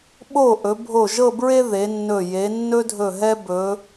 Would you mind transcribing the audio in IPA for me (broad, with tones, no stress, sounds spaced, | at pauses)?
ɓ o˧˩ ʔ ɵ˩˧ bʱ o˧˩ ʒ ɤ˥˧ b ɹ e˥ ð e˩˧ nː ɵ˧˩ j e˩˧ nː ɵ˥ dʱ ɵ˧˩ ɦ ɛ˥ b ɵ˩˧